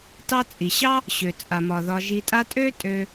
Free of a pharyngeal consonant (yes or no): yes